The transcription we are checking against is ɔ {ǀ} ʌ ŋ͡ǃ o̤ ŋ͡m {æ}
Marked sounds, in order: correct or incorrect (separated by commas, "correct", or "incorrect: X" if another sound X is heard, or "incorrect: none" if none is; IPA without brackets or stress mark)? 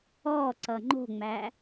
correct, correct